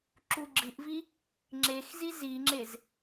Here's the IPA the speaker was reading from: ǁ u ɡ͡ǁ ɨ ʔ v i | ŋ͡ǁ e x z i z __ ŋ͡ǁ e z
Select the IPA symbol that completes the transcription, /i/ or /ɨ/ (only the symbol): i